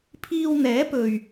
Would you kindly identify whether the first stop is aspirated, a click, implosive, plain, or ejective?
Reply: aspirated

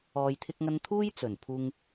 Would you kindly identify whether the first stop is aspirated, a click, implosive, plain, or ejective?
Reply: aspirated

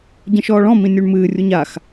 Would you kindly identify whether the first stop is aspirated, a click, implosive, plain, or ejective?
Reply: plain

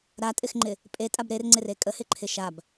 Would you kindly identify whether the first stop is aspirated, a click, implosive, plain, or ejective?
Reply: ejective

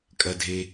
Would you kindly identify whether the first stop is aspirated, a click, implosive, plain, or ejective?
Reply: ejective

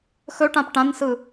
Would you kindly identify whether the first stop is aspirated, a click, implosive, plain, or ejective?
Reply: plain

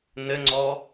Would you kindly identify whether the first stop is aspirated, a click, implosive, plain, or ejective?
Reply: click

